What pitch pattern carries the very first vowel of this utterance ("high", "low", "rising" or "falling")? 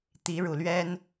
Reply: rising